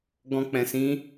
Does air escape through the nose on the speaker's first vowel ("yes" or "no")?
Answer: yes